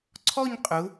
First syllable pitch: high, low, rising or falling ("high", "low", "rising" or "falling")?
falling